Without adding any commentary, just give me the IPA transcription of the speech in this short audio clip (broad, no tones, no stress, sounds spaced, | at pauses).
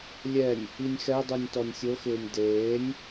lʲ ɛ nʲ | i nʲ x ɛ dˤ u nʲ t ɔ nʲ sʲ o x ɪː nʲ d eː nʲ